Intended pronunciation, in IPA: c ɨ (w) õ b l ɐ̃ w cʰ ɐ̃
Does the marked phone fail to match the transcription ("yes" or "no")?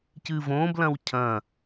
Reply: yes